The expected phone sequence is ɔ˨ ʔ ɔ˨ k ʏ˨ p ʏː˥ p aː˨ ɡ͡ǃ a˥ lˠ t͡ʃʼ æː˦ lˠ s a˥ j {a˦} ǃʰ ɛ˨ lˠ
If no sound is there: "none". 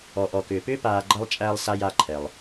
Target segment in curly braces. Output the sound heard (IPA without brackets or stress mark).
a˦